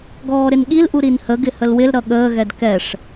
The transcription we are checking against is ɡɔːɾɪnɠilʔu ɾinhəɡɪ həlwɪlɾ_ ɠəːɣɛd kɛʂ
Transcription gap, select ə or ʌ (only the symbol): ʌ